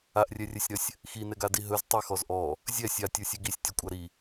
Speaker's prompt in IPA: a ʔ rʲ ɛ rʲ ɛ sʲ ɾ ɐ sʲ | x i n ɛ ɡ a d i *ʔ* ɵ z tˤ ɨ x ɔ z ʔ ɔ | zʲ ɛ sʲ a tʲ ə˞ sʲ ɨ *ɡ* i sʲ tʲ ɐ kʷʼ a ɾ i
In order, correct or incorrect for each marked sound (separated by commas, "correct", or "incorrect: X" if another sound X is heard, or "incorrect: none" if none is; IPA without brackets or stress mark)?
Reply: incorrect: ɦ, correct